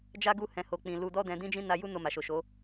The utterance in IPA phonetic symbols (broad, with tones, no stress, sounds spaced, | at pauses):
d͡ʒ a˦ ɡ u˦˨ h ɛ̃˨˦ h o˧ k͡p ĩ˧ l u˧ d ɔ˦ d ɛ̃˧ d ĩ˦ d͡ʒ ĩ˦ n a˧ j u˦ n o˧ m a˨ ʃ o˨ ʃ o˨˦